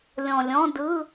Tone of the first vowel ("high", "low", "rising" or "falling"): low